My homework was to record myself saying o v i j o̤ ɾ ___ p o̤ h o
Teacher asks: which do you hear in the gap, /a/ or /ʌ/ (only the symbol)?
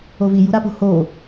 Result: a